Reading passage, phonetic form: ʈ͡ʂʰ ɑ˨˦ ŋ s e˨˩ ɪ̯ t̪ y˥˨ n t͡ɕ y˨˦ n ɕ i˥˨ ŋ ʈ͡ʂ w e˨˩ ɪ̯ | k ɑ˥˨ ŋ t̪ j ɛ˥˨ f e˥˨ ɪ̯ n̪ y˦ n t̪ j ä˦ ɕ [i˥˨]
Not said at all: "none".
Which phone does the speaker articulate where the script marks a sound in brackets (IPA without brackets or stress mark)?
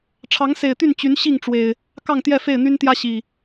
i˨˩